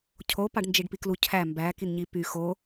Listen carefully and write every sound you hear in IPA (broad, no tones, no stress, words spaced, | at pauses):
cʰo pɑɖnd͡ʒiɖpiklu cʰæ mbæ kinɲipy xo